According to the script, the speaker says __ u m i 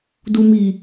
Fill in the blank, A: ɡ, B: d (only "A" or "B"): B